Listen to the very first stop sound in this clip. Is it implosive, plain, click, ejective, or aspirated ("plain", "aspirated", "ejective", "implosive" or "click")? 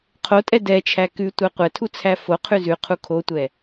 aspirated